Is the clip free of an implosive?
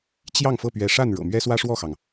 yes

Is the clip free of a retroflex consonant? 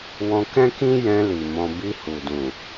yes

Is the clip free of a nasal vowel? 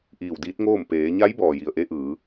yes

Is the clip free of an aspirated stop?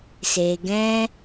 yes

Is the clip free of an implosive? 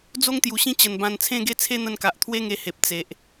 yes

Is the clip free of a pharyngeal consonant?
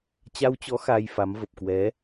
yes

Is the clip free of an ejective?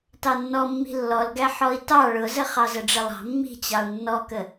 yes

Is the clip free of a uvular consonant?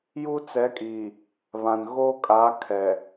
yes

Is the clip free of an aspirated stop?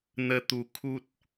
no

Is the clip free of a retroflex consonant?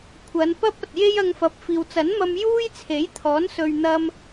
yes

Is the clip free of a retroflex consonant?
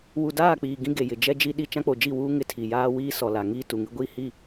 yes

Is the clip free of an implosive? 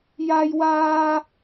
yes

